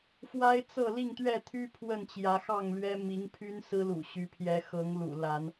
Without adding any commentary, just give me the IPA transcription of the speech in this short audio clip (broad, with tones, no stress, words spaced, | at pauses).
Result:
fwa˦ɪ̯t͡sɤ˥˨ li˥˨ŋt̪ɥɛ˥˨t̪ʰy˦ pʰwə˥˨nt͡ɕjä˨˦xɑ˥˨ŋlɥɛ˦ mi˨˦ŋpʰy˦n sɹ̩˦lṵ˨˩ ɕy˨˦pʰjɛ˨˦ xɤ˨˦ŋlṵ˨˩ la˨˦n